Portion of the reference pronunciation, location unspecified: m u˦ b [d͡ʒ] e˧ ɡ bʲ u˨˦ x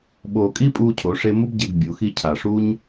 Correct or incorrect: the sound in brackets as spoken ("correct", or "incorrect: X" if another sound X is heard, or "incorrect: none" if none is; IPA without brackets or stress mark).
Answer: incorrect: ɟ